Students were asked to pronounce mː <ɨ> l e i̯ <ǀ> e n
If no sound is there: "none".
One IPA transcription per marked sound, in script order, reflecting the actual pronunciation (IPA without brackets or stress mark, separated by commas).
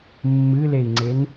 ɨ, ŋ͡ǀ